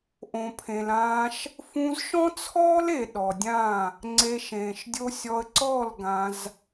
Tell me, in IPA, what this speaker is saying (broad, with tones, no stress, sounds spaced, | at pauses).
ʔ õ˨ pʰ ẽ˨ l ãː˧ ʃ | f ũ˧ z ʃ ɔ̃˦ t͡sʰ ɔː˦ l e˨ ɗ ɔ˨ dʲ ã˦˨ | ŋ͡ǀ e˧ ʃ ẽː˨ ʃ dʲ o˦ sʲ ɔ˧ ə̯ ǀ ɔː˦˨ l ɡ ã˧ z